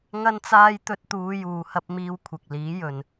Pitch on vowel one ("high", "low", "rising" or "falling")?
high